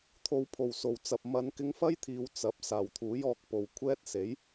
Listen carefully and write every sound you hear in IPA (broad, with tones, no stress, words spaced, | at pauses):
t̪ʰo˨˧wpʰo˨˩w so˨˩wt͡sɐ˨p̚mɐ˨˧n kɪ˧ŋfɐ˥jt̪ʰiː˨w t͡sɐ˨˥p̚ saː˨˩wt̪ʰuː˨˥j ɔː˧k̚po˨w kʷʰɛː˥t̚se˨˥j